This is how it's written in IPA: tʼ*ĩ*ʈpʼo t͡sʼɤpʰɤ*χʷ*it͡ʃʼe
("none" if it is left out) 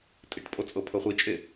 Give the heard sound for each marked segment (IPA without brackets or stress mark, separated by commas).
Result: i, χʷ